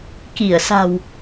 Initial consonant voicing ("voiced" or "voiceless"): voiceless